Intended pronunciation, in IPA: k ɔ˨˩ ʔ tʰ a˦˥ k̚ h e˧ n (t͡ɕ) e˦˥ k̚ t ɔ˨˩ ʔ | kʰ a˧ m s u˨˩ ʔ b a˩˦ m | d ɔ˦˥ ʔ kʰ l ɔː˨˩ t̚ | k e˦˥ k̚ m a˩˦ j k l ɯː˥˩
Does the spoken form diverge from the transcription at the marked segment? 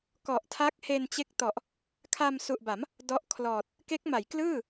no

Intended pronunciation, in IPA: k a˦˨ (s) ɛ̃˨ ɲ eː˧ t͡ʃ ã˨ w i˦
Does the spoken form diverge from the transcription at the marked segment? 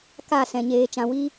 no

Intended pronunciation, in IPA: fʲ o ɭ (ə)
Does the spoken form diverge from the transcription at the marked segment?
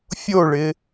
yes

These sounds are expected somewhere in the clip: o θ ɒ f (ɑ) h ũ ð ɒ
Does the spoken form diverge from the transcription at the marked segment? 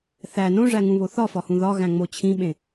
yes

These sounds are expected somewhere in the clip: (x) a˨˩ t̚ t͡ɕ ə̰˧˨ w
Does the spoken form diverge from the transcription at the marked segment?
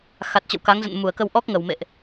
no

